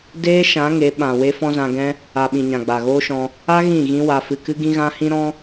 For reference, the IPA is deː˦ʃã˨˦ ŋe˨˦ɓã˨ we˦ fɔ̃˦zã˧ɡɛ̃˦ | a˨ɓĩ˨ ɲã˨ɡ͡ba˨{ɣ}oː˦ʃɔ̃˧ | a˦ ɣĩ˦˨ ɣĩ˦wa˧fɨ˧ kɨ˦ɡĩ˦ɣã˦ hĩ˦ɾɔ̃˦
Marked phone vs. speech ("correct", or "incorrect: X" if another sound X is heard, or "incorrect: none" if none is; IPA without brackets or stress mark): correct